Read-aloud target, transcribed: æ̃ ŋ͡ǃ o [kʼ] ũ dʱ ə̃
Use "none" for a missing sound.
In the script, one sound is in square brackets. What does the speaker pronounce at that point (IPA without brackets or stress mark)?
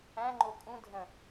kʼ